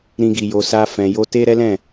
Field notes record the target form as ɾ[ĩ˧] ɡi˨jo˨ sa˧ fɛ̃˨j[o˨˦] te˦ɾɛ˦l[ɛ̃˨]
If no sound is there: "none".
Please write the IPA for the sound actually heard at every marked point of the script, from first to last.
ĩ˧, o˧, ɛ̃˦˨

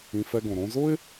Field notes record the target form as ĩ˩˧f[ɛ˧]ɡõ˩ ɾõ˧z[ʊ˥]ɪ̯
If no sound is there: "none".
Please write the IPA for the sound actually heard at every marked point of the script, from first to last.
ɛ˧, ʊ˥

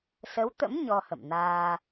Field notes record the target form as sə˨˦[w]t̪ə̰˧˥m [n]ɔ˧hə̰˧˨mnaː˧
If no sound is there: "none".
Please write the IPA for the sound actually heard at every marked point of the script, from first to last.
w, ɲ

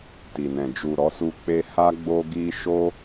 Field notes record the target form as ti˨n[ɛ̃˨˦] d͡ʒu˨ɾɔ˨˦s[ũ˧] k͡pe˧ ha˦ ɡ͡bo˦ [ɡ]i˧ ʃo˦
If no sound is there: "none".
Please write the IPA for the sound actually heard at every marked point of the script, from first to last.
ɛ̃˨, u˧, ɡ

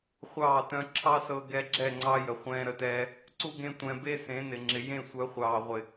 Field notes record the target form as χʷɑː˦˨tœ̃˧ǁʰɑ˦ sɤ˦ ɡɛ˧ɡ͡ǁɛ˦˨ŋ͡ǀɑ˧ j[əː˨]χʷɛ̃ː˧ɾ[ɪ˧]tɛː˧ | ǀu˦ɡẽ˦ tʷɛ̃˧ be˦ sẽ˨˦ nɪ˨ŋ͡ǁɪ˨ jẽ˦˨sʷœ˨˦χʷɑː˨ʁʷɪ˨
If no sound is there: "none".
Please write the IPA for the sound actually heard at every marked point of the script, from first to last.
ə˨, ə˧

